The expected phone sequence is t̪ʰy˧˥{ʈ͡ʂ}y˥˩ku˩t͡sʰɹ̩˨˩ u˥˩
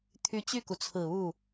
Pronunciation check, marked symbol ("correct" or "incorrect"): incorrect